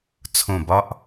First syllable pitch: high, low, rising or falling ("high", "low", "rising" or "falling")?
falling